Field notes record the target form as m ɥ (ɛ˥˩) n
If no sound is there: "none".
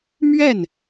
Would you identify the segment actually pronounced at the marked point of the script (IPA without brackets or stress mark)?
ɛ˥˩